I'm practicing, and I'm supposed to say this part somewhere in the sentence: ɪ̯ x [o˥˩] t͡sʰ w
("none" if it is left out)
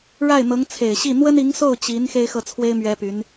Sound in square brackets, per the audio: ɤ˥˩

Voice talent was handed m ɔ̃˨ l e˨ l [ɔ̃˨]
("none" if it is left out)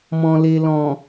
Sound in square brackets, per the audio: ɔ̃˨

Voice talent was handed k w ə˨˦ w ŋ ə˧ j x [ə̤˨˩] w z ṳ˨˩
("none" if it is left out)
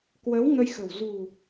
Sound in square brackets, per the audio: ə̤˨˩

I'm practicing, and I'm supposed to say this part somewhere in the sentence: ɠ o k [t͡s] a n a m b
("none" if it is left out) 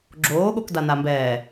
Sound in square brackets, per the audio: d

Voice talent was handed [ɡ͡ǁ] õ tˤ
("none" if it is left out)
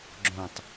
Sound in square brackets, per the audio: ɡ͡ǁ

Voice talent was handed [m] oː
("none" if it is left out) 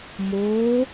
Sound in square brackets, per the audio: m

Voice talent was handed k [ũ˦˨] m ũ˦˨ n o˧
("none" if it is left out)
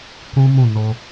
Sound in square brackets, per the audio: ũ˦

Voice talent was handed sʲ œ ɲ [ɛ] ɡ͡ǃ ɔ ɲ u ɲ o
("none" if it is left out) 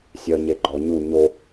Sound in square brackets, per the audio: e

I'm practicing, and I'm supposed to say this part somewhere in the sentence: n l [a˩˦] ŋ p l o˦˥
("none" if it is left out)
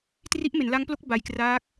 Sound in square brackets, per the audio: a˦˥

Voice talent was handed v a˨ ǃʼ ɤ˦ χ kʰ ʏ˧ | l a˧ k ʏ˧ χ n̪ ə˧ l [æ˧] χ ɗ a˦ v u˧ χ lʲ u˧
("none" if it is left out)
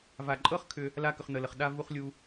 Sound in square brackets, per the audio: ə˧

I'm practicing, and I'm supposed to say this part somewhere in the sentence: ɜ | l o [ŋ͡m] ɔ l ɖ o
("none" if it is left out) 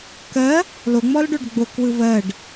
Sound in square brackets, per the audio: ŋ͡m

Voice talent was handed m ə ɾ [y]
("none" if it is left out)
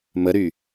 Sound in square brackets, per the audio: y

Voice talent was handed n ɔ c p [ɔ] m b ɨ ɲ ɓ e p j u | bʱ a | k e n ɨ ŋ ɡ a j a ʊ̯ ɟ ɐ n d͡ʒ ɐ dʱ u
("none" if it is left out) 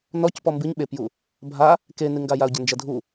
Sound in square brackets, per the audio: ɔ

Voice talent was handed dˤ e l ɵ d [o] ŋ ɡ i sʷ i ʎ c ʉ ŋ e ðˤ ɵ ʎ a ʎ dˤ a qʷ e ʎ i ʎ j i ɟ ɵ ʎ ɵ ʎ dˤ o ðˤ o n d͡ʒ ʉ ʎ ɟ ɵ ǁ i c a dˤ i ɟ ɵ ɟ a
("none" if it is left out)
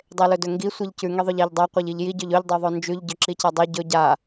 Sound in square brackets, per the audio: ɵ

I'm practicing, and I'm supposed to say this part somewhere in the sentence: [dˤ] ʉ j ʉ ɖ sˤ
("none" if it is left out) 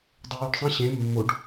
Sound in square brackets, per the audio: dˤ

